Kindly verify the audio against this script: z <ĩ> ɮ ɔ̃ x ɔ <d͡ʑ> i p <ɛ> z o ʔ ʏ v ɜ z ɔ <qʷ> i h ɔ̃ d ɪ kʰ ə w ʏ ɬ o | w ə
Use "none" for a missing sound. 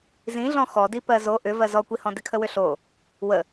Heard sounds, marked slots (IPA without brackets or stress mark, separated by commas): ĩ, d, ɜ, kʷ